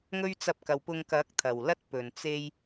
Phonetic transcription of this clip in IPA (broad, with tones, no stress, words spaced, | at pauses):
ŋɵ˥ɥt͡sɐ˧p̚kɐ˨w pʊ˧ŋkɐ˨˥k̚ t̪ʰɐ˨˩wlɐ˥t̚pɵ˨˩n t͡se˧j